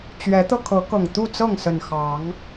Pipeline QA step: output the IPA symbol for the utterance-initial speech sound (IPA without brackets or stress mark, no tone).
t͡ɕ